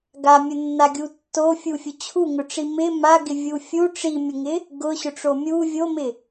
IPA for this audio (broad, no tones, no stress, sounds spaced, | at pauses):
ɡ a mʲ ʊ nː a ɡʲ u tː o fʲ u fʲ ʊ t͡ɕʰ u ŋ ʊ ʈ͡ʂ i m ɪ m a ɡ ɪ vʲ u fʲ u ʈ͡ʂ i mʲ ʊ ŋ ɪ | ɡ ʊ ɕ ʊ ʈ͡ʂ o mʲ u vʲ o m ɪ